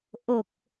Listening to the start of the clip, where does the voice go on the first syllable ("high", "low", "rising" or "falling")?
low